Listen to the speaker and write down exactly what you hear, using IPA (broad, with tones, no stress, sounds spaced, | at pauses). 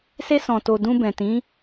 s e˧ s ɔ̃˨ t o˨ d ũ˧ b ɛ̃˨ t ĩ˨˦